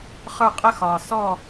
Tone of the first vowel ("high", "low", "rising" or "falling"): falling